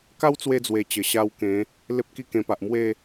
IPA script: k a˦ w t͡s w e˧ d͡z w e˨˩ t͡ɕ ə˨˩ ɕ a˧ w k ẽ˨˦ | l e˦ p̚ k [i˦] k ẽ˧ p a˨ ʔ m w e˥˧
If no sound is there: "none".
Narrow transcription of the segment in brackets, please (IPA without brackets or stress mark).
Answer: i˦